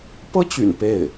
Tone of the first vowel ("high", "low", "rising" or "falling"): high